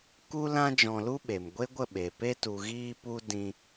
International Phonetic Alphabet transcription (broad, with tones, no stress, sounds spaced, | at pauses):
k u˦ l ã˦ d͡ʒ ɔ̃˧ l u˦ ɓ e˨ m ɡʷ e˦ ɡʷ ə˦˨ ɓ e˨ p e˧ t u˨ ɣ iː˧ p u˧ d ĩ˧